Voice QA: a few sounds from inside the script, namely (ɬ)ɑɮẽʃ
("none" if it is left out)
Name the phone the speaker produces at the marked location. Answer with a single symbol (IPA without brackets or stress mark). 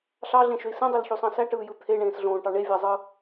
ɬ